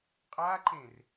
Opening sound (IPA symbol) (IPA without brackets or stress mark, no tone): qʼ